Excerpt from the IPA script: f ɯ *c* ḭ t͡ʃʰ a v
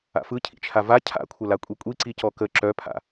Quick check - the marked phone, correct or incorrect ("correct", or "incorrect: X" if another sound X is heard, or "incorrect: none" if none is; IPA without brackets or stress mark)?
incorrect: cʰ